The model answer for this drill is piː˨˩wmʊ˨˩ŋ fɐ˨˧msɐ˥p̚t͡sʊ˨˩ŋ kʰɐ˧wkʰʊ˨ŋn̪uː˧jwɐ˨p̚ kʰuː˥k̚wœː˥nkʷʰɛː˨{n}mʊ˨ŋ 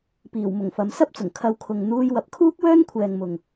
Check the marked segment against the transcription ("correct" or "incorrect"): incorrect